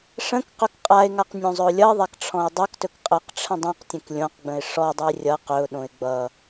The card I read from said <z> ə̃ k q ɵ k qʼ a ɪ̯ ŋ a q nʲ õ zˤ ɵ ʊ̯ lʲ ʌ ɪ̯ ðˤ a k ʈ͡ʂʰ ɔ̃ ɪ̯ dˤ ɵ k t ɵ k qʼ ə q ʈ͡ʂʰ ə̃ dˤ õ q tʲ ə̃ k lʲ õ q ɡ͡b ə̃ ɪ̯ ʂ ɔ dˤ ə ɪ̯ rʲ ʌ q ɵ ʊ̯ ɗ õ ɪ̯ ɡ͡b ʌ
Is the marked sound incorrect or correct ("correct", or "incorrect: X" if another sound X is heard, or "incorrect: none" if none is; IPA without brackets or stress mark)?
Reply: incorrect: ʂ